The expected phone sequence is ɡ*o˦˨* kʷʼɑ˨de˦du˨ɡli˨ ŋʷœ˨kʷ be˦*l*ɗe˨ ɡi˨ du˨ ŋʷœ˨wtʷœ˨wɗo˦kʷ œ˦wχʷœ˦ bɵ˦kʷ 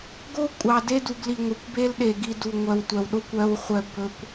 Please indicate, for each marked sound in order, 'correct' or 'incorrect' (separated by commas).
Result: incorrect, correct